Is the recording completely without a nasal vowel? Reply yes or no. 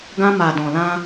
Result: no